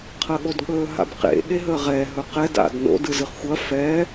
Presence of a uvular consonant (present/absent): present